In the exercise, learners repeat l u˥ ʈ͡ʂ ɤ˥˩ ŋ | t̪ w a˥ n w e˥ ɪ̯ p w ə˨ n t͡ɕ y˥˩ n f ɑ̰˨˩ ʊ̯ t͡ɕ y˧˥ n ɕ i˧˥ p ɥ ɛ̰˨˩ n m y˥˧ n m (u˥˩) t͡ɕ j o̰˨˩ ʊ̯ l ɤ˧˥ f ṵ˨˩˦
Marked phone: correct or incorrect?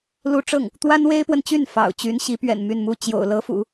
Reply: correct